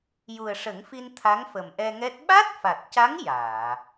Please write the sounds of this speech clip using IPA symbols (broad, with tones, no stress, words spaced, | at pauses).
ju˨˩ə̯ʂə˨˩˦ŋfi˧n t̪ʰa˧˥ŋfə˨˩mʔɛ˧ŋɛ˦˥t̚ ɓa˦˥t̚fa˨˩t̚ca˧˥ŋ jaː˨˩˨